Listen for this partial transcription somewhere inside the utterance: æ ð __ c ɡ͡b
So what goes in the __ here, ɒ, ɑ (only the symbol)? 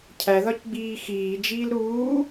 ɒ